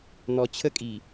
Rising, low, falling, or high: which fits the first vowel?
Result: low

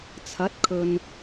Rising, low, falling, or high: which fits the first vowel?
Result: rising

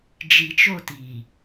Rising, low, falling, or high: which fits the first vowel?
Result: low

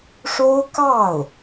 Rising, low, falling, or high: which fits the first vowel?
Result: high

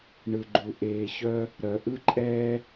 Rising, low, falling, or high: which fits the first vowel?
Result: low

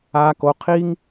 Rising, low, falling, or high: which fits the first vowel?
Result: high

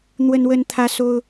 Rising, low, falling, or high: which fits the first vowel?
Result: high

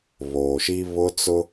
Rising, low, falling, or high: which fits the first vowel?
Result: low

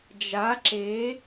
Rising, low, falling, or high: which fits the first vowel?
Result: rising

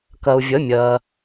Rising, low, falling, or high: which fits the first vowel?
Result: low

